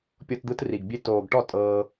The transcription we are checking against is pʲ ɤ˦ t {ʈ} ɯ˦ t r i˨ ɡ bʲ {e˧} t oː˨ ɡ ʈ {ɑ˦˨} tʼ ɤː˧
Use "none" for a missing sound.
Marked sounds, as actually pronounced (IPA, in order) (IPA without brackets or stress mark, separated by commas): d̪, e˧, ɔ˦˨